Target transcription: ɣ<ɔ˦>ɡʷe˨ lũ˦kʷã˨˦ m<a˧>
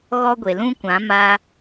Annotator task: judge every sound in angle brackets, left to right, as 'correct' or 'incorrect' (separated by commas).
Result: correct, correct